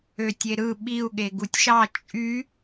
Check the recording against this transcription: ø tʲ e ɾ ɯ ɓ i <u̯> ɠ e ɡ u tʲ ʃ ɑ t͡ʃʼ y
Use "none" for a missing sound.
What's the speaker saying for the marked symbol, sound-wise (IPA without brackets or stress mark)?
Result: u̯